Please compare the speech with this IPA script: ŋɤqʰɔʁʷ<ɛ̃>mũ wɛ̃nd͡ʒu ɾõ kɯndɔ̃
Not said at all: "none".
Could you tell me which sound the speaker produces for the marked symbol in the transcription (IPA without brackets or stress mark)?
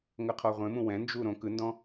ẽ